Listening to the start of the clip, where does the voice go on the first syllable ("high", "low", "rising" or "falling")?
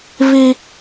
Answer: high